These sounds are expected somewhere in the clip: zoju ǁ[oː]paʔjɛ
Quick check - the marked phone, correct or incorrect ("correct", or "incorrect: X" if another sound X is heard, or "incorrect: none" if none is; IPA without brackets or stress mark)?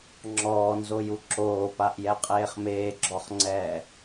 correct